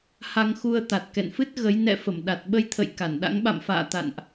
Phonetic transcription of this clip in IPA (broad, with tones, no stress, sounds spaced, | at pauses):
h a˧ ŋ x u˧ ə̯ t̪ a˨˩ t̚ k ɛ̰˧˨ n f ɨ˦˥ t̚ ɣ ə˨˦ j n ɛ̰˧˨ f ə˧˩ m ɗ a˨˩ t̚ ɓ ə˧ j t̪ʰ ə̰˧˨ j k a˧˩ n ɗ a̰˧˥ ŋ ɓ a̰˧˨ m f a̰ː˧˨ t̪ a̰˧˨ n ʔ